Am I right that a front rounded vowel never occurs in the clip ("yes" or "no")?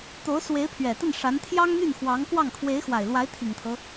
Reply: no